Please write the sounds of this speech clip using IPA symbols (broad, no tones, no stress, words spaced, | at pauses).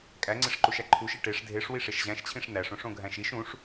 kʼæŋ͡ǀeʂǃuʃæ ǃʰuʃi ʈeʂ dʱeʂ wiʂeʃʑæ̃ʃt͡ɕʰĩʂ næʂõʂ õɡʱæ̃ʃiʃ ũʂ